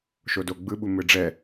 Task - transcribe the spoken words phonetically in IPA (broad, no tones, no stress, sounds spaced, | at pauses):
ʃ o d o ɡ͡b ɯ ɓ u m ɯ ɖ͡ʐ ɛ